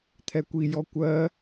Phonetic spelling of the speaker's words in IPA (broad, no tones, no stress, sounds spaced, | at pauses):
t̪ʰ ɛ kʷ i j ɔ kʷ ɜ